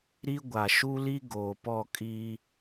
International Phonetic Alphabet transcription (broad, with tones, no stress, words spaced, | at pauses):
ɾi˦ɡʷa˨ ʃu˦li˦ ɡoː˨pɔ˦˨kʼiː˦